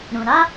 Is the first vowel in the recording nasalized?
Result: yes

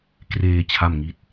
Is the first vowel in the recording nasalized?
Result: no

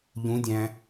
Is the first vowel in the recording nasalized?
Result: yes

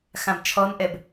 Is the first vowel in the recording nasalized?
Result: yes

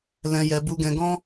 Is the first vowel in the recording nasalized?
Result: yes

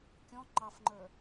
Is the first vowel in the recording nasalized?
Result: yes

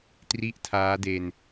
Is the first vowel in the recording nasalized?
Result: no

